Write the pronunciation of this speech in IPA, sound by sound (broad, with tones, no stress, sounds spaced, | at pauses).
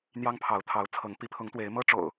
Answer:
n̪ j ɑ˦ ŋ pʰ ɑ˨˦ ʊ̯ t̪ʰ ɑ˨˦ ʊ̯ t͡sʰ ɤ˨˦ ŋ p i˨˦ pʰ ʊ˨˦ ŋ t̪ w e˨˦ ɪ̯ m ɤ˦ ʈ͡ʂ o̰˨˩ ʊ̯